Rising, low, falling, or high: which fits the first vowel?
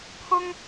high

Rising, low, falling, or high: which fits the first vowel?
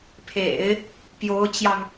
low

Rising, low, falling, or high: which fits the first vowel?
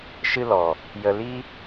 high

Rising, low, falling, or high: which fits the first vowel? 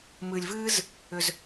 low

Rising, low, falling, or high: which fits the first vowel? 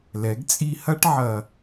rising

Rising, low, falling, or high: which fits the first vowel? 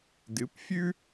rising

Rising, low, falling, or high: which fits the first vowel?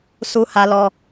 high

